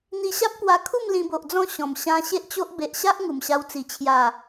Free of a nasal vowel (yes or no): no